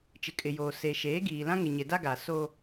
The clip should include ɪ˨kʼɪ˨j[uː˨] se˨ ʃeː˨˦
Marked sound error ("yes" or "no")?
yes